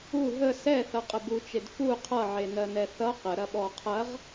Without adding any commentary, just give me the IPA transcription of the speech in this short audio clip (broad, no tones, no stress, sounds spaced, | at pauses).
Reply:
u ɦ ə s ɛ θ ʌ qʼ ə b u t͡ʃ e d f u qʰ ʌ ʕ e n ɜ n ɛ θ ʌ q ə ɾ ɐ ɓ ɔ qʰ ɐ ʁ